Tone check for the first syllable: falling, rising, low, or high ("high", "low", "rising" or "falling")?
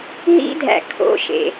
high